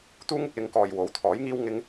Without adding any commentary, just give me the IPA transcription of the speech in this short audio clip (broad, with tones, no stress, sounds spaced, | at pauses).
t̪ uː˥ ŋ ɪ˨ k̚ l ɪ˧ ŋ k ɔː˨ j w o˨˥ w t̪ʰ ɔː˨˥ j ŋ iː˥ w ŋ ɪ˥ ŋ